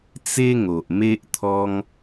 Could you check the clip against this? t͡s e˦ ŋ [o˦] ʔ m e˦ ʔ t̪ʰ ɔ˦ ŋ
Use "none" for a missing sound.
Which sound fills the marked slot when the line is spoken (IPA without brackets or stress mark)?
o˨